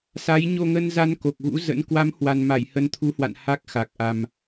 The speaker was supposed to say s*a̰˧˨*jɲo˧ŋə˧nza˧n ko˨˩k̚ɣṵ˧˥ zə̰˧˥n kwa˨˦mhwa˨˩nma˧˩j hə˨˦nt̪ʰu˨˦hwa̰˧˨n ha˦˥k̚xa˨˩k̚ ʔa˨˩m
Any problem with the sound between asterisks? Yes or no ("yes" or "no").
yes